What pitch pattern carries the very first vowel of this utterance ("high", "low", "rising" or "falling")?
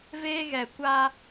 high